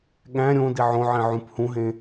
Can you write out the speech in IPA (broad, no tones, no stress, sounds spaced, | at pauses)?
ɠ æ̃ ɾʲ õ d i ʕ õ ʕ ĩ ʕ ũ p h ũ ɦ ẽ